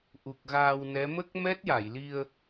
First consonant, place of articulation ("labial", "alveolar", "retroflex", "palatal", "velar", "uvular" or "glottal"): glottal